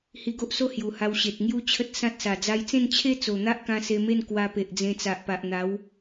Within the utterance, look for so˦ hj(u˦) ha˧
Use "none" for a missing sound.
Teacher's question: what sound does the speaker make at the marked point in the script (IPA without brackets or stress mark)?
u˨˩